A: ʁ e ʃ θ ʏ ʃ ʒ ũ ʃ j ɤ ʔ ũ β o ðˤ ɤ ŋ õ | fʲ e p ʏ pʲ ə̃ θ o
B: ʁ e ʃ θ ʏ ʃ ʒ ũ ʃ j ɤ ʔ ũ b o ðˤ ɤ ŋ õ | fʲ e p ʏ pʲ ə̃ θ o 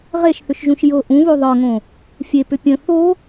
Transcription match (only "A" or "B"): A